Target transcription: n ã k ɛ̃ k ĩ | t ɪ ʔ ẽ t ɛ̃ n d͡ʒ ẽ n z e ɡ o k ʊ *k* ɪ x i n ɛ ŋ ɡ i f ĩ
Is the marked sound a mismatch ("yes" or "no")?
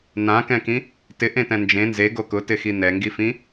yes